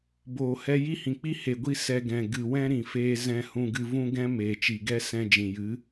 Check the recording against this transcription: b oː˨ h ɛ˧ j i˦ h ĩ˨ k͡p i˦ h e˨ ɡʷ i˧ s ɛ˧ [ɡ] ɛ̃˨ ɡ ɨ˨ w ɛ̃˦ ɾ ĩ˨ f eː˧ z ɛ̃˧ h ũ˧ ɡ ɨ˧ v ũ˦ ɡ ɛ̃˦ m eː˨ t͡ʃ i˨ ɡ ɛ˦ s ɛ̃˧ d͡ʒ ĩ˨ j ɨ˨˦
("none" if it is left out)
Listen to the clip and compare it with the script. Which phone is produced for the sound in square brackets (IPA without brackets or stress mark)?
ɡ